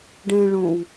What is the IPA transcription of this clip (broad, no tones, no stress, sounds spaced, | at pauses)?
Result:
ɖ ɛ̃ ɭ õ w